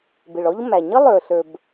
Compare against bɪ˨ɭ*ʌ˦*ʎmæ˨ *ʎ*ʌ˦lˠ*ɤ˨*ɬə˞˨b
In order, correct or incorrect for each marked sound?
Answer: incorrect: ɔ˦, incorrect: ɲ, incorrect: ə˞˨

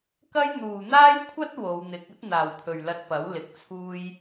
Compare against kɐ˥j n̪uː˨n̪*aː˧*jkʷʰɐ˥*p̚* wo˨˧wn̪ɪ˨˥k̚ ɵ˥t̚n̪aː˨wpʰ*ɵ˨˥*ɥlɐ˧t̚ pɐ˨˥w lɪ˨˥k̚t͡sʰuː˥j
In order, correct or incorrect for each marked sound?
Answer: incorrect: aː˥, incorrect: t̚, incorrect: ɵ˨

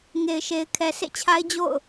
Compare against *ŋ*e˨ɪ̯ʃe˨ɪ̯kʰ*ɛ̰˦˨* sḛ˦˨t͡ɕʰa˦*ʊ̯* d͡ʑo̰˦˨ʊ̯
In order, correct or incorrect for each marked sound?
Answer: correct, incorrect: ɛ˨, incorrect: ɪ̯

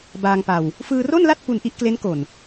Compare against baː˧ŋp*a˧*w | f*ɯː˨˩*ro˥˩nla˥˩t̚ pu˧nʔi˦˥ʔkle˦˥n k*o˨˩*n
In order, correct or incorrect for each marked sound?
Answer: correct, incorrect: ɯː˧, correct

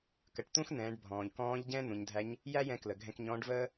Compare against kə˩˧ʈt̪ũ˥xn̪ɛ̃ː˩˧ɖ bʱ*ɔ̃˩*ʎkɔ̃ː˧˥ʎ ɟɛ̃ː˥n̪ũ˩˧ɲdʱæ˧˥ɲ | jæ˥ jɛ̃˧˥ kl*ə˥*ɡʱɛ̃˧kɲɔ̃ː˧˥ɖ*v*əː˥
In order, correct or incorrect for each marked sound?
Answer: incorrect: ɔ̃ː˩, incorrect: ə˩, correct

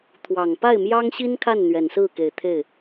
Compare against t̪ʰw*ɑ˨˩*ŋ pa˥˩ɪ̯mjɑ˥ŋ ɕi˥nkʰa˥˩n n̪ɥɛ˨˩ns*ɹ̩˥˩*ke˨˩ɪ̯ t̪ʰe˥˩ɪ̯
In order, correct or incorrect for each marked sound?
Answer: correct, correct

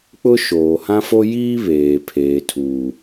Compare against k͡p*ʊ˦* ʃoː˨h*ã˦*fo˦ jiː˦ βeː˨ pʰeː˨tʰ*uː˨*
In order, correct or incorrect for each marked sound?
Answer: correct, correct, correct

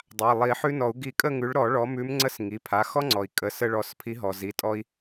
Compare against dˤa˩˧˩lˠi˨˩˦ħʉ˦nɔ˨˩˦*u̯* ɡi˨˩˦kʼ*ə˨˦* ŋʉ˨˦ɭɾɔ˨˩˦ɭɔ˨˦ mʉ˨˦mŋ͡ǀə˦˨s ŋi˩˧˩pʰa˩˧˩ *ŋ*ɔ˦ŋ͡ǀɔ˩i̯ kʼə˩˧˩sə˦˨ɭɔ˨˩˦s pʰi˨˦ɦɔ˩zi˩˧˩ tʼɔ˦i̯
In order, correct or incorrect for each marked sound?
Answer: correct, incorrect: ə˦˨, incorrect: x

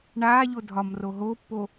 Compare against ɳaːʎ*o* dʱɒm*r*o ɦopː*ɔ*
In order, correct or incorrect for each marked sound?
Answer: correct, correct, incorrect: o

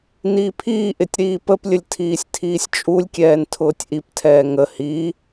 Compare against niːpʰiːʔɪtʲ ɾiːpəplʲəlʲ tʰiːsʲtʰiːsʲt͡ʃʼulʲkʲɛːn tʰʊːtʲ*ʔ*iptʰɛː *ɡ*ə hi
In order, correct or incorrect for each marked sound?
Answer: correct, incorrect: ŋ

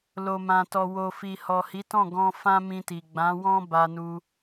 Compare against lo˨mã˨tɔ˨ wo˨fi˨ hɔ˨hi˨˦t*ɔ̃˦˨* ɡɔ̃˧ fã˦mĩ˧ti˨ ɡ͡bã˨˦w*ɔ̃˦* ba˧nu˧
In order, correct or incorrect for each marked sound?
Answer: correct, correct

